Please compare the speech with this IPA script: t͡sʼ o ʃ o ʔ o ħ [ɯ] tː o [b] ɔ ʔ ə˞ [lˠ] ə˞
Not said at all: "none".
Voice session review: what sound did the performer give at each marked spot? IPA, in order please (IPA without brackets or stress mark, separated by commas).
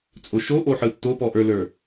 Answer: ɯ, p, l